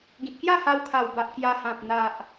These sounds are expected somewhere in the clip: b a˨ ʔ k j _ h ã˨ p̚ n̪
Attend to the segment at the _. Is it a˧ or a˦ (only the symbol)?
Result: a˧